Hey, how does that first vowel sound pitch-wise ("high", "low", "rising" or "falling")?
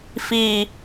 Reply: falling